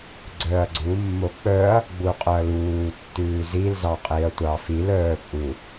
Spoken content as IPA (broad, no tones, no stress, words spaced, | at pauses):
ɡ͡ǀœɐ̯ɡ͡ǀumːo k͡pœɐ̯ | ɡ͡buqʼɵɐ̯luːtːʉː zilzɑqʼiɐ̯ tʷɑfil œːpʼu